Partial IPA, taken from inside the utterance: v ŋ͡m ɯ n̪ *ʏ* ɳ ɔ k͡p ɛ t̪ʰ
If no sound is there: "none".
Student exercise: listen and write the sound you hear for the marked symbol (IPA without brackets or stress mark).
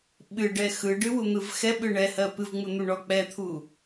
u